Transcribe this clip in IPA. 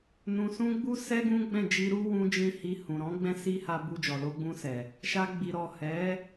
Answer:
n ũ˨ s ũ˧ ɡ͡b u˧ s ɛ˧ ɡ ũ˦ ɡ͡b ɛ̃˦˨ d͡ʒ i˧ ɾ u˦ w ũ˦ d͡ʒ ĩ˦ h i˧ h ũ˨ ɾ ɔ̃˨˦ ɡ͡b ɛ̃˦ s i˦ h a˧ b u˧ d͡ʒ ɔ˨ l o˧ ɡ͡b ũ˧ s ɛ˨ | ʃ a˧ ɡ͡b i˨ ɾ ɔ˨ h ɛ˨˦

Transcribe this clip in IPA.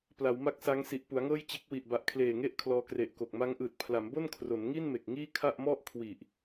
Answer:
p l a˩˦ w m a˦˥ k̚ s a˦˥ ŋ s i˨˩ ʔ p u˩˦ a̯ ŋ ɤː˥˩ j t͡ɕ e˦˥ k̚ w i˨˩ ʔ b a˨˩ ʔ kʰ l eː˨˩ ŋ e˦˥ ʔ kʰ l ɔː˧ k r e˨˩ ʔ k o˨˩ k̚ m a˦˥ ŋ ʔ ɯː˨˩ t̚ pʰ l a˩˦ m b o˥˩ n kʰ r o˩˦ n ŋ i˥˩ n m e˨˩ k̚ ŋ iː˥˩ kʰ a˥˩ ʔ m ɔ˥˩ ʔ kʰ w i˨˩ ʔ

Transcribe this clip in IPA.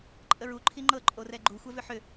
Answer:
ǃʼ ə ɹ u ǃʰ i ŋ͡ǃ ɤ ǃʼ o r ɛ ɡ͡ǃ u xʷ ɛ v ʏ ħ ʏ

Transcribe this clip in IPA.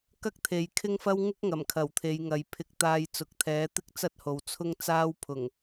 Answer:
k ɐ˥ k̚ t̪ʰ e˨ j kʰ ɪ˥ ŋ f ɐ˥ w ŋ ɪ˥ k̚ ŋ ɐ˨˩ m kʰ ɐ˨˩ w t̪ʰ e˨˧ j ŋ ɐ˨˧ j pʰ ɪ˧ k̚ t̪ aː˧ j t͡s ʊ˨ k̚ t̪ʰ ɛː˨˥ t̪ ɪ˥ k̚ t͡s ɐ˥ t̚ h o˨ w t͡sʰ ʊ˥ ŋ t͡s aː˥ w pʰ ʊ˨˩ ŋ

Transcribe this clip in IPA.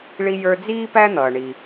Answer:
ɭ i˧ j ə˞˧ d͡z iː˥ p æ˥ n̪ ʌː˩ ɳ i˩

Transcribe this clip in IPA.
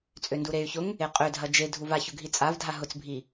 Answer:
t͡sʼ ø n d u ɾ e y̯ ç ʊ ŋ | e qʼ ø dʱ ɐ d͡ʒ e dʱ u v a ç ʊ ɡʱ i t͡sʼ a v dʱ a ɦ ʊ t͡s bʱ i

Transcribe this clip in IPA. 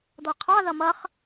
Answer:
d̪ ɔ qʰ ɑ ð ʌ m ʌ χ

